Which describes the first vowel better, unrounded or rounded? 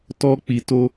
rounded